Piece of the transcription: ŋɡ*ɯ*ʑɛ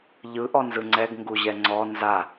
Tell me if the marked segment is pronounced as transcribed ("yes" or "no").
no